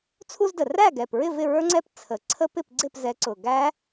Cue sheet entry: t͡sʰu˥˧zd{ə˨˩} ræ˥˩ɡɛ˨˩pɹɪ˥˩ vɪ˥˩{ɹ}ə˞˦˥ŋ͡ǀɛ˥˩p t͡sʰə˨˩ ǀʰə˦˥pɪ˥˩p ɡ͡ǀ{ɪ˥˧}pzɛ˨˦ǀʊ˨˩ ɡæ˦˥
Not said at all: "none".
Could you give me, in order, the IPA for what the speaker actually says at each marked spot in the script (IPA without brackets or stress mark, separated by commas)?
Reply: ə˨˩, ɹ, ɪ˥˩